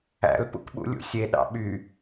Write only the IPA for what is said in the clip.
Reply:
æ̰ l p ṵ k ɓ ṵ lʲ ṵ sʲ e ɗ ɑ̰ ɓ y

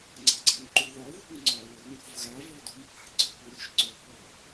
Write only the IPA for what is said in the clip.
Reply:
ŋ͡ǀ a̤ ɡ͡ǀ a ŋ ǃ u ð ɒ ð ṳ ŋ ŋ͡ǀ ɒ w ɵ ŋ ɾʲ ṳ v ɣ a v ɔ d ṳ m p a̤ ɡ͡ǀ ɔ p u ɾʲ ɵ ʃ ǀ ɵ p ɔ

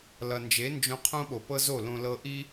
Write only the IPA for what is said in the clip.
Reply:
l ʌ˨ n d͡ʒ e˨˦ n d͡ʒ õ˧ qʰ õ˦ ɓ o˨ p ɤ˦ z o˦˨ l õ˧ l ɤ˧ ʔ i˦

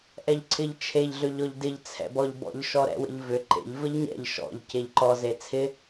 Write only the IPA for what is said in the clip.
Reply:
ʔ ɛ ʎ ǀʰ ɪ ʎ t͡ʃʰ e ʎ ɮ ø ʎ ɔ ʎ d ɪ ʎ t͡sʰ ɛ̰ b ɔ ʎ b ɔ̰ ʎ ʃ ɔ ɾ ɛ̰ w ə̰ ʎ v ʏ ǃ ḛ ʎ v ə ʎ ɲ ɛ̰ ʎ ʃ ɔ̰ ʎ c e ʎ ǃ ɔ z e t͡sʰ ɪ

